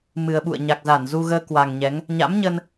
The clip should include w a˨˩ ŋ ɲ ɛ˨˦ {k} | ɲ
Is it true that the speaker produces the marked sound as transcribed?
no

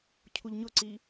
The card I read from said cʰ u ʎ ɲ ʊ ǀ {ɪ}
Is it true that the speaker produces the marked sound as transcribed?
no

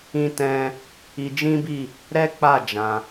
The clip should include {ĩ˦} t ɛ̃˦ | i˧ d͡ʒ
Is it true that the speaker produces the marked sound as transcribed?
yes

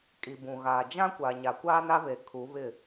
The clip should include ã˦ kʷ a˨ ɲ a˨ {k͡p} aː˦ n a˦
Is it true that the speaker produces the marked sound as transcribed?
no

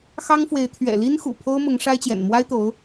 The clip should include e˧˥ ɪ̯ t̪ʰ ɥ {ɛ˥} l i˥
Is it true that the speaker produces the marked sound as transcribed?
no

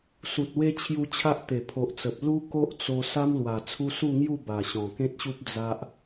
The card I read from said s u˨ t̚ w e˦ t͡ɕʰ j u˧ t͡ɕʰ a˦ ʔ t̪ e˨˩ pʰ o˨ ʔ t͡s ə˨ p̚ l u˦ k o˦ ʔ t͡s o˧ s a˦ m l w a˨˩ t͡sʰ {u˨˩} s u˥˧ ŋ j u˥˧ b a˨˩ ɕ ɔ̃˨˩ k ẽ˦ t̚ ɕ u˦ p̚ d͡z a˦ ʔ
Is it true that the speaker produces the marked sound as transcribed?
no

